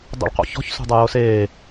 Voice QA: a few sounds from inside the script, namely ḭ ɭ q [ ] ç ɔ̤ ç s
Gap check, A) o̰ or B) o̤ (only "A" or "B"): A